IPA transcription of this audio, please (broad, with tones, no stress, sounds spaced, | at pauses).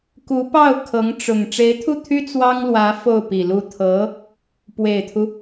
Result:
k u˧˥ p ɑ˥˩ ʊ̯ kʰ ɤ˧˥ ŋ ʈ͡ʂ ʊ˨˩ ŋ ʈ͡ʂ e˧˥ ɪ̯ t̪ʰ u˥˩ t̪ʰ y˥ t͡s w ɑ˥ ŋ l w ä˧˥ f o˥˩ ʊ̯ p i˨˩ l u˥˩ t̪ʰ ɤ˧˥ | p w e˨˩ ɪ̯ t̪ʰ u˦